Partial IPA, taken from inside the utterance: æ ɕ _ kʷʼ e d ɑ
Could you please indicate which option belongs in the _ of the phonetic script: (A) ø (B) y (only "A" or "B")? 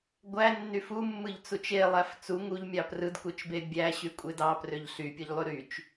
B